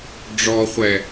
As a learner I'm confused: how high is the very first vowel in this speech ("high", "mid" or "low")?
mid